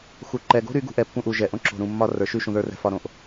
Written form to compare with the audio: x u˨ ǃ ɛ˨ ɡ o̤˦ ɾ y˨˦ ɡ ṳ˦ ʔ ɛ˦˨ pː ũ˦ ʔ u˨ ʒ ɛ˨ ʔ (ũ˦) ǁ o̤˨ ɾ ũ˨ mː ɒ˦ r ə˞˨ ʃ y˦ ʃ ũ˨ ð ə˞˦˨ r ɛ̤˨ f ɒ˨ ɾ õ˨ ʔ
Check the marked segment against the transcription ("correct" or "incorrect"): incorrect